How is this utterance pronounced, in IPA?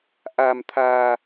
ʔa˧mt̪ʰaː˧

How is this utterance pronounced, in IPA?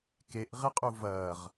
keʔʁeqʼu vɐːʁ

